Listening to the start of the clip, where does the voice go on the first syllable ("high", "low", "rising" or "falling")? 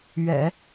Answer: low